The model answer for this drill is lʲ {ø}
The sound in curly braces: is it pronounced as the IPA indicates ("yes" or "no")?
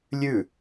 no